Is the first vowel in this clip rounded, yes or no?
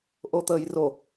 yes